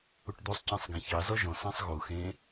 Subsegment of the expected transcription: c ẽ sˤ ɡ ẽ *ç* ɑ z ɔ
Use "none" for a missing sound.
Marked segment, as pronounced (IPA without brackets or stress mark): ç